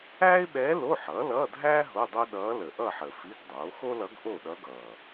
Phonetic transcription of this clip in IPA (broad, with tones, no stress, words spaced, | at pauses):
æː˥ɪ̯ɓɛː˧˥ lo˧˥˧ħʌː˩˥ lʌː˧˥˧dʱæː˥ ɦo˧˥˧dˤo˥ ɗʌː˧˥lə˨˩ʔʌ˥˨ħə˨˩ fi˧˥˧ɡdˤoː˩˥ xo˥lʌ˧˥ɡ ʔo˥˨ɗʌ˧˥ɡʌː˨˩